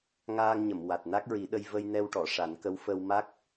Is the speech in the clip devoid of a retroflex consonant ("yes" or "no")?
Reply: no